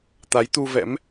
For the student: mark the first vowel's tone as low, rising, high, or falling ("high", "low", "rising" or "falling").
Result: rising